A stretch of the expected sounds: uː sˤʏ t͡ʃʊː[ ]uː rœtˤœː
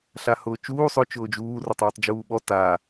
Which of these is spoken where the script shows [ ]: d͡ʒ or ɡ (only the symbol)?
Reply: d͡ʒ